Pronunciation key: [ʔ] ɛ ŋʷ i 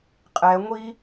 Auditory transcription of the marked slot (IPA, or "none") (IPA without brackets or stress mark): qʼ